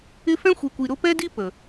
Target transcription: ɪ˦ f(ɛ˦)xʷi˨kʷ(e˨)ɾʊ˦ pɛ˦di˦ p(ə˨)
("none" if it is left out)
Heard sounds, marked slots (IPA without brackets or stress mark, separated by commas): ɛ̃˦, i˨, ə˨